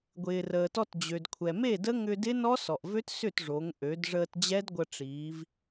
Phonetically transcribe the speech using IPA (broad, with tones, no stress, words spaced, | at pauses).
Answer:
ɡʷɪː˩rəː˩tɔ˧t d͡ʑø˩dkʷʰɛ˩me˥˨də˦˥ ŋʏ˧dɪ˦˥ nɔ˦˥sɔ˩ʔvø˦˥t sʏ˥˨tʐo˩˧ŋʔø˩˧d ʐəː˧td͡ʑɛ˦˥dɡʷə˧ ʈ͡ʂiː˩˧v